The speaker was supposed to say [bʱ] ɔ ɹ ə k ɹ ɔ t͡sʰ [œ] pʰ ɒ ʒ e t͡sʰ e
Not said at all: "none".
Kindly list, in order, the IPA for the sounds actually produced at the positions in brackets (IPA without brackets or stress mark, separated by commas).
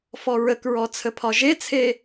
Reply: f, ə